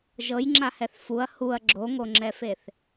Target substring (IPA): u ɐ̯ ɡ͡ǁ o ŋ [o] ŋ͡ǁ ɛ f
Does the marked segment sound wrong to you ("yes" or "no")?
no